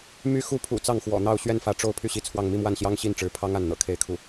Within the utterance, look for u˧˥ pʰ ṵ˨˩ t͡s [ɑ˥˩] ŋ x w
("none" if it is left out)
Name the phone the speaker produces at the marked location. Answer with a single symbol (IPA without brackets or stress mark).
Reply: ɑ˥˩